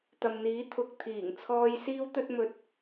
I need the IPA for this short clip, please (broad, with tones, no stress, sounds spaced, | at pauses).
t̪ ɐ˨ m n̪ iː˨˥ t̪ʰ ʊ˨ k̚ t̪ʰ iː˨˩ ŋ t͡sʰ ɔː˧ j s iː˥ w t̪ ɵ˥ t̚ m ɵ˧ t̚